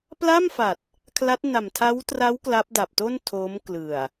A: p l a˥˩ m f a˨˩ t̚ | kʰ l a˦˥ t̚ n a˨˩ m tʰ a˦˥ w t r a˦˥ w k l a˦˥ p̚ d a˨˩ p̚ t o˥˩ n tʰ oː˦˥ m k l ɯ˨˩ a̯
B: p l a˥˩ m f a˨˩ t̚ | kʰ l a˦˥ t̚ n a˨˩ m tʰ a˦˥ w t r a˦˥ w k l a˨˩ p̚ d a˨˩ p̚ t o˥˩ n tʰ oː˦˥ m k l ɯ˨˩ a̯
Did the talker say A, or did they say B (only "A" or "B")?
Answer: A